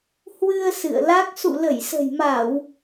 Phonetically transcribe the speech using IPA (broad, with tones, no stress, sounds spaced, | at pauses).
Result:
h w ɨ˧ ə̯ s ɨ̰˧˨ ə̯ l a˦˥ k̚ s ṵ˧˨ l ə˧˩ j s ə̤˨˩ j m a˧˩˨ w